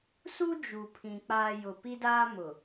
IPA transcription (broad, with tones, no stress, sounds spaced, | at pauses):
s u˦ d͡ʒ u˨ pʰ ĩ˨ k͡p aː˨ j ʊ˨ p i˦ d aː˦ m ʊ˨